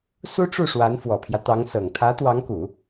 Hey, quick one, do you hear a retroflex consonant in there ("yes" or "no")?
yes